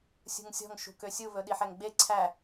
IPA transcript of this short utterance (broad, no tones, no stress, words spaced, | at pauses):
sʲṳŋsʲɔ̤ŋ ʃṳkøsʲu βɵɗiħɛŋɡ͡be ǀʰæ